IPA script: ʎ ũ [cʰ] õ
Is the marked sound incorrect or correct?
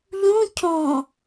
correct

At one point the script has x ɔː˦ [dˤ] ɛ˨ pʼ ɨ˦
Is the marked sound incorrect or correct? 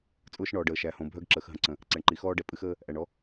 incorrect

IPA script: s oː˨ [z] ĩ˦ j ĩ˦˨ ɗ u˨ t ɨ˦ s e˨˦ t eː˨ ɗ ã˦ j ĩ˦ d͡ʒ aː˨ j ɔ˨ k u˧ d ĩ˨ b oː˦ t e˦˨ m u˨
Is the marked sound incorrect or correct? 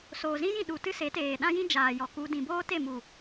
correct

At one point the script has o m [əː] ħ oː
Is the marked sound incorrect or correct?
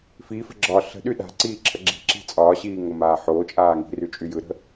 incorrect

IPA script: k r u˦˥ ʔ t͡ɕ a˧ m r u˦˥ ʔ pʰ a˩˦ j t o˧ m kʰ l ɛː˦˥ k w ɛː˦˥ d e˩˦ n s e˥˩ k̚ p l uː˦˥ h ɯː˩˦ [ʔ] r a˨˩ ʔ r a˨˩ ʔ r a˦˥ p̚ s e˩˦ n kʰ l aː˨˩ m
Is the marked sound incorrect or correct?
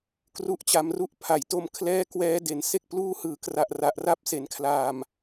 incorrect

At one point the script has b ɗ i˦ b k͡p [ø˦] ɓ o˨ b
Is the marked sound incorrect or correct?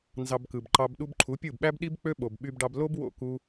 correct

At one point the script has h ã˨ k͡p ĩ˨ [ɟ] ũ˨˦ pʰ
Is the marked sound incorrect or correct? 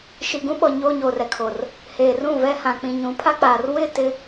incorrect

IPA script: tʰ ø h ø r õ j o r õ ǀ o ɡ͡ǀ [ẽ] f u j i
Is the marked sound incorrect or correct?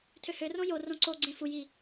correct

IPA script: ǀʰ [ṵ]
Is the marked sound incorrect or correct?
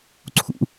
correct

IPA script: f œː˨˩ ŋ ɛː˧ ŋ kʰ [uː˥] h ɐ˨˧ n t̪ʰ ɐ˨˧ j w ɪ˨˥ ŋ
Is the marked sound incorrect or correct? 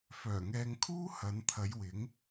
correct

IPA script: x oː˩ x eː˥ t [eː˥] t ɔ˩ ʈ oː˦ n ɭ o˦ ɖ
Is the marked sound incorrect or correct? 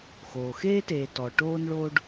incorrect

